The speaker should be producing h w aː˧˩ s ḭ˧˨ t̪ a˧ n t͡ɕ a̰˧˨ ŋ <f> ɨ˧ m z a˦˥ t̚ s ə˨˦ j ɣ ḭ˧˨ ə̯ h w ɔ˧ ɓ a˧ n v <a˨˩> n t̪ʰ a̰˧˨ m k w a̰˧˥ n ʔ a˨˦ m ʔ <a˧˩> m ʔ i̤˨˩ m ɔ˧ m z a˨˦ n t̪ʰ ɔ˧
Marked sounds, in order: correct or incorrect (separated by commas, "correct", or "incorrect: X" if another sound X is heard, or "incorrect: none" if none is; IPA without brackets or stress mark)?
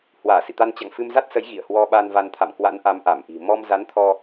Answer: correct, incorrect: a˧, correct